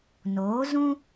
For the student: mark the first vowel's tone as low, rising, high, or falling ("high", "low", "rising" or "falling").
rising